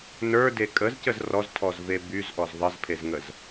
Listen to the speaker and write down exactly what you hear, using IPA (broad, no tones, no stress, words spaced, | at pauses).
nə˞de kʼəzcəz rɔztʰɔzve byzʔɔz ðˤəzpʰezŋəz